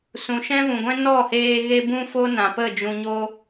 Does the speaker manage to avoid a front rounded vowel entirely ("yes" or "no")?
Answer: yes